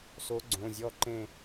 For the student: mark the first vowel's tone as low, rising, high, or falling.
rising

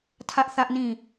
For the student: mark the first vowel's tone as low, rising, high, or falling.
high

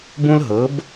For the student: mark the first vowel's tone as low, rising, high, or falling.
high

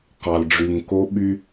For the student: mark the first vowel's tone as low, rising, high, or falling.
low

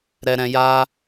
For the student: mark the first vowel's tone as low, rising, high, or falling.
low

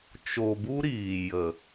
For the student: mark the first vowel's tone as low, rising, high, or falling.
low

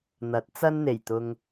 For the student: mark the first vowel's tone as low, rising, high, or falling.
rising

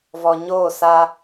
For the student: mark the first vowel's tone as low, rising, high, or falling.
low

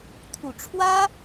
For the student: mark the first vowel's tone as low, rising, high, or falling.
low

